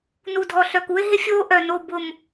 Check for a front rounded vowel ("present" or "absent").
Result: present